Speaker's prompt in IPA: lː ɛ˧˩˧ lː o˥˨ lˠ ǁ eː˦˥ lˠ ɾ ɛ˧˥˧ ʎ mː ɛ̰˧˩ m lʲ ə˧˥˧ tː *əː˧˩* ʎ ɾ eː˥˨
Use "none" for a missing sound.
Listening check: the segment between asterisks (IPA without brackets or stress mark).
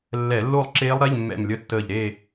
əː˧˩